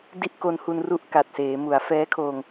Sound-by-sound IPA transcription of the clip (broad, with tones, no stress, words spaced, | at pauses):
di˥˩ʔ ko˧nhu˧n ru˥˩ʔka˨˩t̚seː˩˦ mu˩˦a̯fɛː˦˥kʰoː˧ŋ